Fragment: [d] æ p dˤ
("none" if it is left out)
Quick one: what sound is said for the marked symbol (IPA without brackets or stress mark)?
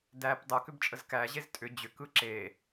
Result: d